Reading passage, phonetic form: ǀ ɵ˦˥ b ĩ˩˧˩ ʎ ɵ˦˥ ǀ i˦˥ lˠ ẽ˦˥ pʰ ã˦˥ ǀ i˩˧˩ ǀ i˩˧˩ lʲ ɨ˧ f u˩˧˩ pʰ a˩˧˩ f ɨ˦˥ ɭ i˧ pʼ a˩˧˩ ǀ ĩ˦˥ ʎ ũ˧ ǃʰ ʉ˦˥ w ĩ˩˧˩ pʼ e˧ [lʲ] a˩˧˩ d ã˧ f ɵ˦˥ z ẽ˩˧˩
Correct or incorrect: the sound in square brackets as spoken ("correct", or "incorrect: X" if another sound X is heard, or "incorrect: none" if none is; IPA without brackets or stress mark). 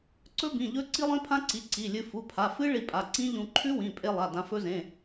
incorrect: lˠ